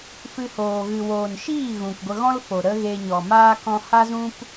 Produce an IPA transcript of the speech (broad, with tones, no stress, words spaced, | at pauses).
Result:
fɨ˧hoː˨ ɣɨ˨woː˨nʃiː˦˨ ɣũ˨k ɡʷə˧ɣɔ̃˦lfo˨ ɾə˦ɣe˧ ɲɔ˨maː˦ kɔ̃˧ha˦zũ˦p